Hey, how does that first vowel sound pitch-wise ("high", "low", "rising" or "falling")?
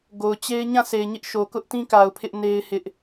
low